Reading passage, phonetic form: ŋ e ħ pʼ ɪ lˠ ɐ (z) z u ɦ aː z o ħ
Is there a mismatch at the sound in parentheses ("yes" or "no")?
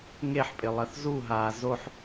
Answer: yes